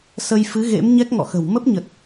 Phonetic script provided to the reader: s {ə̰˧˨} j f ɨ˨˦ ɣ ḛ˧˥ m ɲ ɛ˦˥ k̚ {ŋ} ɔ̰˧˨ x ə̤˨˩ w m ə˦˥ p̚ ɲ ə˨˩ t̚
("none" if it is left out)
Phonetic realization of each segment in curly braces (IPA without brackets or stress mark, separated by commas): ə˧, ŋ